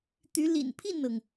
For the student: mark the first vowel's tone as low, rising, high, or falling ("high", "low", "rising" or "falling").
rising